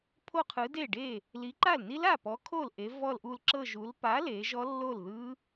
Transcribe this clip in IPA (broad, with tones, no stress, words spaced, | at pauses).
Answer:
pʰo˥˧qʰɯ˨˥ de˥˩ɖe˥˩ | li˨˥ǃa˥˩lni˦˥l a˥˩pɔ˨˥kʰo˥˩l ʔe˨˥vɔ˥˧lʔu˥˧l ǁɤ˥˧ʒu˨˥l pa˨˥le˩˧ ʒɔ˦˥lːo˥˩lðɯ˦˥